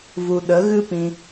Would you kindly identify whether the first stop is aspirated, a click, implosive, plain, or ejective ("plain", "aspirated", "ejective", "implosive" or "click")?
implosive